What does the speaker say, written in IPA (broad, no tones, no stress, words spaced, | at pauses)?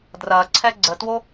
drɐǀʰɛ ɡ͡ǀətwo